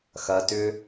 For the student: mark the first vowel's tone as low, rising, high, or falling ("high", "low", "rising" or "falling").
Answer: low